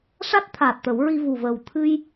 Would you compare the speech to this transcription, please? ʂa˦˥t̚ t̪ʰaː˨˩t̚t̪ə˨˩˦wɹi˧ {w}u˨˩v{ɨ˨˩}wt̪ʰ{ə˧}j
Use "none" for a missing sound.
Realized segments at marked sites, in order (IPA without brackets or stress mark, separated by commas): v, ə˨˩, ɨ˧